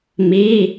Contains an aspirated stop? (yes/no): no